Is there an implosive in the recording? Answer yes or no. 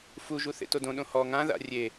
yes